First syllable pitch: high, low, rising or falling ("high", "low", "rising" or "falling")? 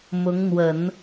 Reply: rising